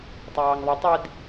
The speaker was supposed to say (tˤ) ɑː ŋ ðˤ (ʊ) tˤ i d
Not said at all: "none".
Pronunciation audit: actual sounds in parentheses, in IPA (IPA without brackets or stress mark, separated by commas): tˤ, ʊ